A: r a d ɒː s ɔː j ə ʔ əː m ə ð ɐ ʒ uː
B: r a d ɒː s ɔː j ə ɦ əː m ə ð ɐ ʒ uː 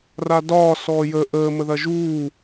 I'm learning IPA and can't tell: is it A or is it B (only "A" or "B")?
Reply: A